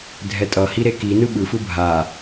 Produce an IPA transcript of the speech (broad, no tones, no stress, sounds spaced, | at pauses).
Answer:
dʱ ɛ tʼ ʌ h i ɾ e k i n ɯ ɓ ɯ f ɯ bʱ a